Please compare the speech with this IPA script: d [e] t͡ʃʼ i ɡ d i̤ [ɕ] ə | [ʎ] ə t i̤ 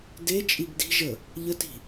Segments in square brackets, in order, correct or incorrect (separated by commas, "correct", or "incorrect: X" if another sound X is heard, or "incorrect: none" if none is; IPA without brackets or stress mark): correct, incorrect: ʒ, correct